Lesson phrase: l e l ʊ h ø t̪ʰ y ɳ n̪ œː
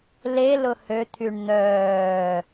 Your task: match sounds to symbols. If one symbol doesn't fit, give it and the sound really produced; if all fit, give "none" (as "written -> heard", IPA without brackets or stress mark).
none